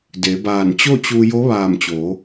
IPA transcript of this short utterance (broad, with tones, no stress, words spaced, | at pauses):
de˩˧baː˧˩n t͡ɕo˥˨t͡ɕu˧ jo˧˥ʋaː˧˩mt͡ɕo˩˧